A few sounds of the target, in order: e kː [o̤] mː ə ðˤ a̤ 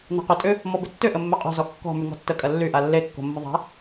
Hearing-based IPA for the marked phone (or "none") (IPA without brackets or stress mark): o̤